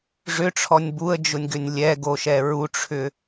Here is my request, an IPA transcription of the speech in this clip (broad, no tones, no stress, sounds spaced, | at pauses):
ʐ ʏ ʈ͡ʂʰ ɔ nʲ b u ə̯ d͡ʒ ʊ nʲ ɡ ʏ nʲ lʲ ɛ ɡ o ʃ ɛ ɹ u ʈ͡ʂʰ ʏ